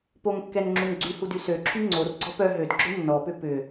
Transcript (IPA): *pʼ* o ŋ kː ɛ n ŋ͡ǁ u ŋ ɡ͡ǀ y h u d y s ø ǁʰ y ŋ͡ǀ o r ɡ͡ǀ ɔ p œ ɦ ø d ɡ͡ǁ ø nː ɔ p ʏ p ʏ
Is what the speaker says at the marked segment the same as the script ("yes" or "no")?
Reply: no